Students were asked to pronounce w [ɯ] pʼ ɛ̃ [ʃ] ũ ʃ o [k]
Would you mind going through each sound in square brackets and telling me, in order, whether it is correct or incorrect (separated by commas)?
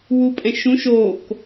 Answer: incorrect, correct, correct